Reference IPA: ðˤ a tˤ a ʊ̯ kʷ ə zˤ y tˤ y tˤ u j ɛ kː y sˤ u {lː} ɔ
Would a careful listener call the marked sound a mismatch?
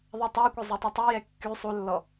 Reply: no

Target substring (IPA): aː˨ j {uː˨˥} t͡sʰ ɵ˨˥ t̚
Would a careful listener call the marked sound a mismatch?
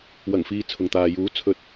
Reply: no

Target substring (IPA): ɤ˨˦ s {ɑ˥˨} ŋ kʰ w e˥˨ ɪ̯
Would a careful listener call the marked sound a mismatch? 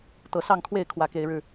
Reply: no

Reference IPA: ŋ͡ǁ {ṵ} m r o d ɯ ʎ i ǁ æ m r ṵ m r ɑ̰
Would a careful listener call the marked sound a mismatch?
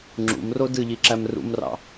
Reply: no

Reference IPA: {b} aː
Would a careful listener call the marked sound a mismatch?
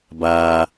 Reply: no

